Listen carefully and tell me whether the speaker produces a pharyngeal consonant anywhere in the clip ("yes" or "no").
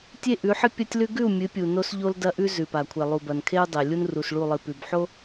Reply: yes